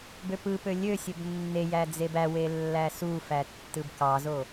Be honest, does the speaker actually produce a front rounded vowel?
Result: yes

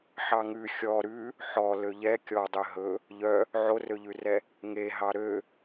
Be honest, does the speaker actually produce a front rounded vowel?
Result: yes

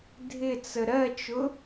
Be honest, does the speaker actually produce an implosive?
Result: no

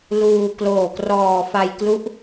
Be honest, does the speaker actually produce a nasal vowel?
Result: no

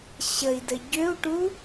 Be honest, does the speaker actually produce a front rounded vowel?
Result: yes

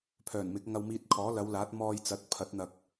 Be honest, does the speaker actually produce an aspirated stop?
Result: yes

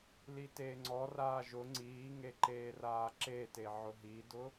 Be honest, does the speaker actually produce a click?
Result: yes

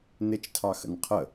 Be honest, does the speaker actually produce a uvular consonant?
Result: yes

